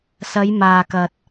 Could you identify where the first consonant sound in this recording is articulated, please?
alveolar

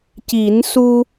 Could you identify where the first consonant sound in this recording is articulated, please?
palatal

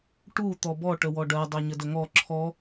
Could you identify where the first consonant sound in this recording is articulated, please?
retroflex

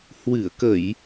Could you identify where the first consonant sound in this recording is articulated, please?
glottal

